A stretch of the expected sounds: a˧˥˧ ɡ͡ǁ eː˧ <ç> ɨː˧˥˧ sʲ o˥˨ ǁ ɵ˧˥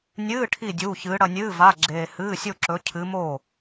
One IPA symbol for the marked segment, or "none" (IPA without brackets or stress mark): h